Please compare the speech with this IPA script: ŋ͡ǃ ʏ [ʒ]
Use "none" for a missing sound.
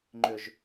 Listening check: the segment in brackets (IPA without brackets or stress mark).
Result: ʒ